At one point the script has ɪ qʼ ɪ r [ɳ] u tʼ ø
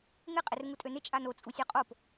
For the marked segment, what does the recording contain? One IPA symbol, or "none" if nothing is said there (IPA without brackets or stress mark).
ŋ